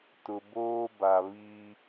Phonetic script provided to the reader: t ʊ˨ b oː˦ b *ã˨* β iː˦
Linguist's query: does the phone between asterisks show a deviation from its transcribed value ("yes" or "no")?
yes